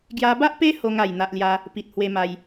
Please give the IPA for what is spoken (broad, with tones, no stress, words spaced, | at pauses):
ɡja˧ba˦ʔpe˦ ho˧ŋa˨˩j n̪a˨ʔlja˧ | pi˨t̚hwe˧ma˧j